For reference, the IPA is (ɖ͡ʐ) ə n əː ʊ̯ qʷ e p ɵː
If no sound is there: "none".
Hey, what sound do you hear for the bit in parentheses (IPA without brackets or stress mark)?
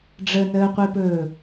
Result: ɖ͡ʐ